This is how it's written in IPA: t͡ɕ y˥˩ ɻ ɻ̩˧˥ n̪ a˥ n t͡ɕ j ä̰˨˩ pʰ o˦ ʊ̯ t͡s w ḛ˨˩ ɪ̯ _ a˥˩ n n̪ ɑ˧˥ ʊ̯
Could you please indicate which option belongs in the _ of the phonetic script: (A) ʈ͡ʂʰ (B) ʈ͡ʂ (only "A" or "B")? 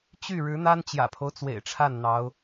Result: A